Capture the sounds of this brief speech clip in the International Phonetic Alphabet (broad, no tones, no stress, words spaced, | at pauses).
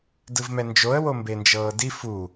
dɯvmɛnd͡ʒoə̯ wombend͡ʒɤːdi fu